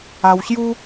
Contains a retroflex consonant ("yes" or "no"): no